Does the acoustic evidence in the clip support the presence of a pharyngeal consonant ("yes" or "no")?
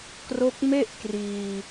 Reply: no